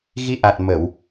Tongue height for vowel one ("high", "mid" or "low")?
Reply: high